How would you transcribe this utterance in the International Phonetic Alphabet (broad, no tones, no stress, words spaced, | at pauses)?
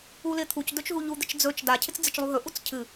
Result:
ulɪt̪ʰuc dɵt͡ʃɦuʎu d̪ɪt͡ʃd͡zɵt͡ʃ da cʰɪt͡sd͡zɪt͡ʃlˠuɦɵ ʔut͡scʰɨ